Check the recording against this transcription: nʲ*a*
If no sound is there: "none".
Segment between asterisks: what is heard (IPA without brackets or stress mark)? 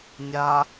a